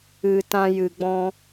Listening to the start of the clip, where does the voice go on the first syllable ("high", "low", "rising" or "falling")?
low